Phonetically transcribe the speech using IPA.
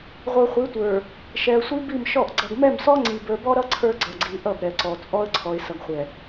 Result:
ʁʷ ə˞˨ χʷ i˨˦ tʷ ə˞˨ | ʃ ɛ˨ ə̯ sʷ i˦ b i˦˨ m ʃ ɔ˦˨ ʔ ɡ͡ǀ ʌ˨ ɡ m ɛ˦˨ m s ɔ˦ ŋ͡ǀ i˨ b ə˞˨ b ɔ˦ ɾ ʌ˦ ǀʰ ə˞˦ ɡ͡ǀ ʌ˨ ɡ͡ǀ i˨ ʔ ʌ˦˨ b ɾ ɛ˨ ǀ ɔ˨ t͡sʼ ɔ˦ ə̯ ǀʰ ɔ˨ ɪ̯ s ʌ˨ ɡ χʷ ɛ˨

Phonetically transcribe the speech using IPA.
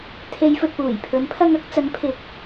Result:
t̪ʰ e˨˧ j f ɵ˨ t̚ p uː˨˩ j pʰ ɵ˨˥ n pʰ ɐ˧ ŋ ɐ˨˥ k̚ t͡s ɐ˨˥ n pʰ ɪ˨˥ k̚

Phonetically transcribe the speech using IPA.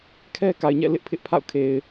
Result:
kʰ ɛ˦ k a˨ ɪ̯ ɲ ɛ̰˦˨ l ɪ˦ ʔ pʰ ɪ˦ ʔ pʰ a̰˦˨ ʊ̯ kʰ e˨ ɪ̯

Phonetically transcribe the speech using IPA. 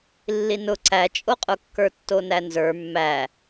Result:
lː i n ʊ ǀ æ t͡ʃʼ o qʼ ʊ kː ə˞ tː o n æ n z ə˞ mː æ

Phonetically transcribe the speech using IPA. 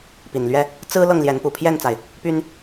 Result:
p i˨˩ n l ɥ ɛ˦ | t͡s ɹ̩˦ l ɤ˥˨ ŋ l j ɛ˨˦ n p u˨˩ pʰ j ɛ˥˨ n t͡s a˩ ɪ̯ | p y˦ n

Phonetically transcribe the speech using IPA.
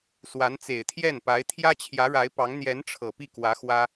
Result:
s w a˧˥ n t͡s e˨˩ ɪ̯ t̪ʰ j ɛ˥˩ n p a˧˥ ɪ̯ t̪ʰ j ä˥ t͡ɕʰ j ä˧˥ ɻ a˧˥ ɪ̯ p ɑ˧˥ ŋ n̪ j ɛ˧˥ n ʈ͡ʂʰ ɤ˨˩ p i˥˩ k w ä˧˥ x w ä˥

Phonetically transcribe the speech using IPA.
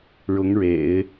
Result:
ɻ ʊ˧˥ ŋ ɻ ḛ˨˩˦ ɪ̯

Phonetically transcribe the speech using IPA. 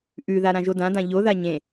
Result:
ʔ ʉ ð a ɾ ã ʒ o d ã d ã ʎ o ð a ɲ ẽ

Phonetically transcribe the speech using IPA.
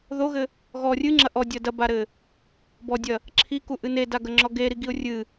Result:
ð o ɣ ɘ | ɣ ɔ rʲ ɨ ŋ͡ǁ ɐ ʔ ɔ dʲ ɐ d ɐ b a ɾ ɘ | b ɔ dʲ ɐ | ǁʰ i k u ʔ ɨ n e d a ɡ ɐ ŋ͡ǁ ɔ ɡ e ɾ i ɡ i ʊ̯ rʲ ɨ

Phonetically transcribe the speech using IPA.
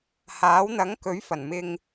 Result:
h aː˨˥ w n̪ ɐ˨˥ ŋ k ɵ˨˥ ɥ f ɐ˨˩ n m ɪ˨ ŋ

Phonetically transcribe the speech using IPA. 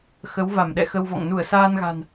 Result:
x ə˨˦ w v a˧˩ m ɗ ɛ̰˧˨ x ə˧ w v ɔ̰˧˨ ŋ n u˧˩ ə̯ s aː˧ n ɣ a̤˨˩ n

